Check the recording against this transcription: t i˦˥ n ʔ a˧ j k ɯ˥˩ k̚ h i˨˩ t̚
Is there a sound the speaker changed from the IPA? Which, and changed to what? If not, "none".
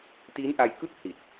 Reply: none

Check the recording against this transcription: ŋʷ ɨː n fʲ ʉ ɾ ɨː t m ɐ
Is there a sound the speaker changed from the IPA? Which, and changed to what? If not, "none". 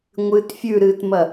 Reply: n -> t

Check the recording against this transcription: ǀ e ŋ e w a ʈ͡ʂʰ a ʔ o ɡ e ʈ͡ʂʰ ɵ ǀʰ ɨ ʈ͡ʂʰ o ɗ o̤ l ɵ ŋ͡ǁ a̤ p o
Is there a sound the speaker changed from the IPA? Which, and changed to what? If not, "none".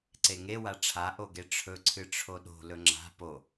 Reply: none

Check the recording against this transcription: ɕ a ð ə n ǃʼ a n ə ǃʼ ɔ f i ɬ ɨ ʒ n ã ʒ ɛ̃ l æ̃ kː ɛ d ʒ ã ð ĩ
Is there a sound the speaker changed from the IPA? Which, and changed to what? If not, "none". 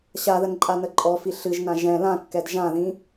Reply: æ̃ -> ã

